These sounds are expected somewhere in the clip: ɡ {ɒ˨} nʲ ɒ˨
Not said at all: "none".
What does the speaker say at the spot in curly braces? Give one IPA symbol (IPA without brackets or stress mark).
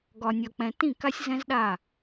ɒ˨